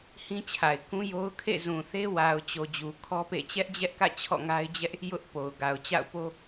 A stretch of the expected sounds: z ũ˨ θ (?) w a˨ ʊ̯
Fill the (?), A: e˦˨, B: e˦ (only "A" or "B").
B